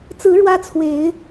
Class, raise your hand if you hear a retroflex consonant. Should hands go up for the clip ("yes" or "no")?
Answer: yes